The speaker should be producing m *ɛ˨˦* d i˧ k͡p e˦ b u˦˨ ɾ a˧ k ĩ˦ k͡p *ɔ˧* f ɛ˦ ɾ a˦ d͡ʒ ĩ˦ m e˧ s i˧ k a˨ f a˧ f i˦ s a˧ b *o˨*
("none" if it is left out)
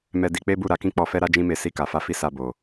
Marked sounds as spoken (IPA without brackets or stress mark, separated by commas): ɛ˧, ɔ˧, o˨